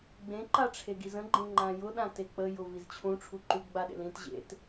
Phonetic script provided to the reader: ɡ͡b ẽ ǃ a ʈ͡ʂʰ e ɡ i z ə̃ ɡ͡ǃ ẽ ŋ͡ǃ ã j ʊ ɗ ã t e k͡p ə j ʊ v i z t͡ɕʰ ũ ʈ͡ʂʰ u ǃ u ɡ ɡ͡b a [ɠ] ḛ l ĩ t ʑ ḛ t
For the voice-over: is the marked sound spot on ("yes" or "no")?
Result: no